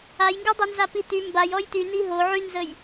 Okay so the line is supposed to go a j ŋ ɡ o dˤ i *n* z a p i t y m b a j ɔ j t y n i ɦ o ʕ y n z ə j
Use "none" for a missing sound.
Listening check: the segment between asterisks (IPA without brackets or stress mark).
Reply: n